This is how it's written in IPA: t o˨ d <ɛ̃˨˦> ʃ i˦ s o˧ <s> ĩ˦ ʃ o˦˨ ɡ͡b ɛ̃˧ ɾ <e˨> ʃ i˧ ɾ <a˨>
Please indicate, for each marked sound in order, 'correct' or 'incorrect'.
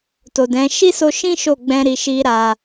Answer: correct, incorrect, incorrect, correct

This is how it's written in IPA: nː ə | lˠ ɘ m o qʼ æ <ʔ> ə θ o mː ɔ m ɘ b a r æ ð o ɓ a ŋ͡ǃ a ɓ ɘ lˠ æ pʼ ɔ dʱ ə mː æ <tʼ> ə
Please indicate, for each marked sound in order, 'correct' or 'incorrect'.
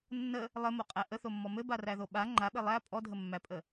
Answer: correct, incorrect

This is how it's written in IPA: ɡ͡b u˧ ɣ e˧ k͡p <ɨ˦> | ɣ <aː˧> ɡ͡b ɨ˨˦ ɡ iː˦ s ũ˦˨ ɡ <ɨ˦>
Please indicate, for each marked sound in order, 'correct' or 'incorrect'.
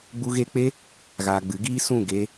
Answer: incorrect, correct, incorrect

